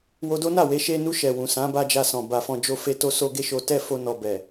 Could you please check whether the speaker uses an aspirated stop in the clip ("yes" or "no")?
no